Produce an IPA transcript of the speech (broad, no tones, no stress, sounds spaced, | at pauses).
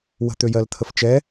w ə̤ t̪ ø j ɜ l t̪ʰ ə f t͡ʃ ɛ